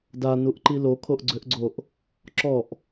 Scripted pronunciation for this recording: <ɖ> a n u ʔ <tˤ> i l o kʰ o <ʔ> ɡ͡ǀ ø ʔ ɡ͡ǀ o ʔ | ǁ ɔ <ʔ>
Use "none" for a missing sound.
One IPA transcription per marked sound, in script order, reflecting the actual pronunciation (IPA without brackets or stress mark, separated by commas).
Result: d, ǃ, ʔ, ʔ